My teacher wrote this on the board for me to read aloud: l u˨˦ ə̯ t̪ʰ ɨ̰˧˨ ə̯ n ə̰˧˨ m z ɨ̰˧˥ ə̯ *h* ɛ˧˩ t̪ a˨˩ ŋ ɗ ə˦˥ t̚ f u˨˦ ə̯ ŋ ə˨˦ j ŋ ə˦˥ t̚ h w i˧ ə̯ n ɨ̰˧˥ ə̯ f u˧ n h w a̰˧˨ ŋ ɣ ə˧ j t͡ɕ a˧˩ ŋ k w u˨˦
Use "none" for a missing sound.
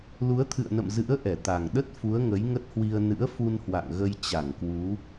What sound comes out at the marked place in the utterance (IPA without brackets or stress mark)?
ʔ